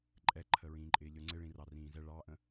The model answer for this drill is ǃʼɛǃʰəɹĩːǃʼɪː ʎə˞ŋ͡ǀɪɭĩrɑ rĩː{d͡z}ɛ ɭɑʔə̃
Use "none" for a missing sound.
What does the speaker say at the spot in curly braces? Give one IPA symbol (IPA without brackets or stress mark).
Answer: z